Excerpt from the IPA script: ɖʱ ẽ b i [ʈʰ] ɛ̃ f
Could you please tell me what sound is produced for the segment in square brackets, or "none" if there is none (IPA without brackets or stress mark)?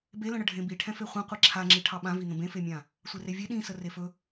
ʈʰ